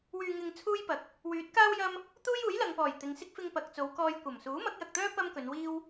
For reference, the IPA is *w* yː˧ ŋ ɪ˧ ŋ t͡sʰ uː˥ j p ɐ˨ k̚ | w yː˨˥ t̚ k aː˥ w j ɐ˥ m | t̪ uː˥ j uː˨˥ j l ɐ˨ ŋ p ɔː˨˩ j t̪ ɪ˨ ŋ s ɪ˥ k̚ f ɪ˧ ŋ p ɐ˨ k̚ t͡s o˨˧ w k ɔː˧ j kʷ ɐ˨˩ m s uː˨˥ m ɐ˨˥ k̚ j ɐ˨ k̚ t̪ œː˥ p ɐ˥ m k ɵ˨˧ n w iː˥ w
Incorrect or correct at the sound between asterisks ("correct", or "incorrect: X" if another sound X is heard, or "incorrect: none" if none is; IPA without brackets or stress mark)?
correct